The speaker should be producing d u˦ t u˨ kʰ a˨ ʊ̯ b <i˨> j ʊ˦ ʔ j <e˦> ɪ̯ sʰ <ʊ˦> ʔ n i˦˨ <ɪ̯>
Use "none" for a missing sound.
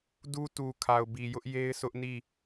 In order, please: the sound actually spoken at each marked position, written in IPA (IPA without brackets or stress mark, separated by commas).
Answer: i˨, e˦, ʊ˦, none